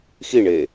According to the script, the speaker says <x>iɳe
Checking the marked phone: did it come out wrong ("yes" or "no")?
no